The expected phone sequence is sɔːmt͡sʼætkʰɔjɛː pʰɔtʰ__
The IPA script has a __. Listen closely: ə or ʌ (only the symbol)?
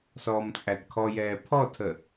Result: ə